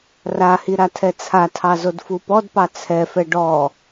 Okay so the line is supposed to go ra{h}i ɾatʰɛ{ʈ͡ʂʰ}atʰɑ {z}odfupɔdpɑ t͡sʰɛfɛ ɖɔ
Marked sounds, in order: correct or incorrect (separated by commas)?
correct, incorrect, correct